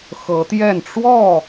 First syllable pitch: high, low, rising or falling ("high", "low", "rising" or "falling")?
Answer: rising